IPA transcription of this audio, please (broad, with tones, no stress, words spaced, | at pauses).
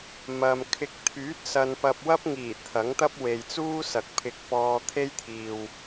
mɐ˨m kʰɪ˨k̚t̪ʰyː˨˥t̚ sɐ˧npɐ˧p̚ wɐ˥p̚ŋiː˨˩ t̪ʰɐ˨˥ŋt̪ɐ˥p̚we˨jt͡suː˥ sɐ˨k̚pʰɪ˧k̚pɔː˧ t̪ʰe˥jt̪ʰiː˨w